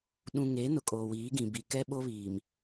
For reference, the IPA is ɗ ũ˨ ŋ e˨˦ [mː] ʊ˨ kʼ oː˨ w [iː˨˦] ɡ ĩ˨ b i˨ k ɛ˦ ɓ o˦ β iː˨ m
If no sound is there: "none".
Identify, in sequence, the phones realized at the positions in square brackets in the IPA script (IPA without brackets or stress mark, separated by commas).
n, iː˨˦